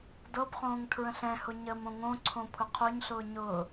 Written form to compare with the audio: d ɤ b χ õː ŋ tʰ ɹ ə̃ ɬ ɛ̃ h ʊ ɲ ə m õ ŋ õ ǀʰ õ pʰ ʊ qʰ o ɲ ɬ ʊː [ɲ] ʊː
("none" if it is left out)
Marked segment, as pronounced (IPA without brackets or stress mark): ɲ